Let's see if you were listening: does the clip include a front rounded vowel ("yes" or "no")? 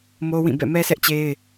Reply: no